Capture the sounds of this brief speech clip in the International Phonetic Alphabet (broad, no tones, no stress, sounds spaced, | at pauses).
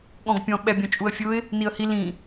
ɠ ɔ̃ ɡ pʲ ɔ̃ ɓ ɛ bʲ ɔ̃ t͡ʃʼ u ə̯ fʲ ʊ ɪ̯ | n i ə̯ h i l ĩ